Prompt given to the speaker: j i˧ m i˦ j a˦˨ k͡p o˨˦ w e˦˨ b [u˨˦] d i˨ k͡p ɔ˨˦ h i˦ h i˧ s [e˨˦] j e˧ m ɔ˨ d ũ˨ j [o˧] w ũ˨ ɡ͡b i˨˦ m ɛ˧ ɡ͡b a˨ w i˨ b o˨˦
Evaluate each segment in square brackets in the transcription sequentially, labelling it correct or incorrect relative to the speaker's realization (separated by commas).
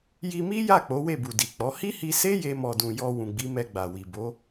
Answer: incorrect, incorrect, incorrect